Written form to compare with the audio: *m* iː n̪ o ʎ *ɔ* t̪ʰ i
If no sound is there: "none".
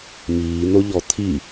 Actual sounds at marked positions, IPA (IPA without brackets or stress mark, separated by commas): m, ɔ